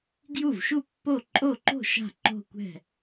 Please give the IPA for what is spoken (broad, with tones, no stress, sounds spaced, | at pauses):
ɡ j u˥˩ v ʃ u˥˩ pː o˥˩ ǃʼ o˥˩ ǃ o̤˥˩ ʃ a̤˥˩ ǃ o̤˥˧ kʷ ɛ̤˥˩